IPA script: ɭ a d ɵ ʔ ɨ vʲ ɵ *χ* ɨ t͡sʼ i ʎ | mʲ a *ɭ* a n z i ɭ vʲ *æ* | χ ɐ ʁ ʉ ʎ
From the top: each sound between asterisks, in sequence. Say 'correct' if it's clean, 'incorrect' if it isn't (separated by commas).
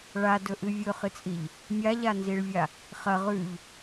correct, incorrect, incorrect